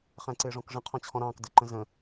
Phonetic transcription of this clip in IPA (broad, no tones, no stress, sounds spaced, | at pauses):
χ æ̃ ǀ ɪː ʐ ɔ̃ k ʐ ə̃ qʰ ɔ̃ t͡ɕʰ ɔ̃ ɾ ɑ̃ː k d ə ǃ ə̃ z ə̃